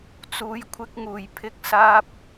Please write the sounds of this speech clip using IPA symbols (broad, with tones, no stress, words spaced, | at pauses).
t͡suː˨˧jkʷʰɪ˧k̚ŋuː˨˩j pʰɪ˨˥k̚saː˧p̚